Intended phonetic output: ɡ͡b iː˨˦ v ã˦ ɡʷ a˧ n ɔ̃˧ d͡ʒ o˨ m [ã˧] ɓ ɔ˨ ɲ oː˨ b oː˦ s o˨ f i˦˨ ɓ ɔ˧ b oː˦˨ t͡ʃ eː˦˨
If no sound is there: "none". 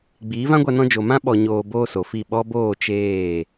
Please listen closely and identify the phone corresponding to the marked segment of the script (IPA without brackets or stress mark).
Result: ã˦